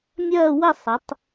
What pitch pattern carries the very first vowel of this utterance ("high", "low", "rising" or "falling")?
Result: falling